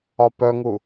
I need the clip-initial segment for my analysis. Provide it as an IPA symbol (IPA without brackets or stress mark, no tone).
ɒ